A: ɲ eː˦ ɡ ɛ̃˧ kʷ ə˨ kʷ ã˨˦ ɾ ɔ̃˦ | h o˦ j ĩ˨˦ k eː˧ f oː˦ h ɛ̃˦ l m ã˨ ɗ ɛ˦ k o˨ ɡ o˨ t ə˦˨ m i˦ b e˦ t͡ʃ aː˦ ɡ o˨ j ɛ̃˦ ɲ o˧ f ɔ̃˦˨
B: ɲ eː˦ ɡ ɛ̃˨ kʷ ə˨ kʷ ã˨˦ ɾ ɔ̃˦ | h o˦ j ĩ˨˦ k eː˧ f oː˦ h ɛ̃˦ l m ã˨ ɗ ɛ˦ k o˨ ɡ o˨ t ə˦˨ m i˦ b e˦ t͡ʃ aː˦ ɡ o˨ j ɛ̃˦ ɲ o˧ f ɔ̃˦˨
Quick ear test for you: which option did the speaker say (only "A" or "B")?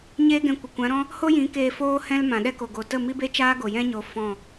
A